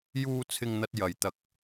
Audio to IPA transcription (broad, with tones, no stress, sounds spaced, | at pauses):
j uː˧ t͡sʰ ɪ˧ ŋ n̪ ɐ˧ t̚ j ɐ˨ j t̪ ɐ˨ k̚